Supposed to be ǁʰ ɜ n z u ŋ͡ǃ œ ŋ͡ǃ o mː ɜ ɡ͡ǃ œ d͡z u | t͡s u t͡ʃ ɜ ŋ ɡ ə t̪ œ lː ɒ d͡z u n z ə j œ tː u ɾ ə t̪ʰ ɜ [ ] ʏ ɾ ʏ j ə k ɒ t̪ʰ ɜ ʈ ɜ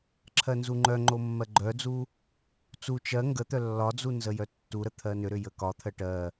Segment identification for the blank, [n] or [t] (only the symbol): n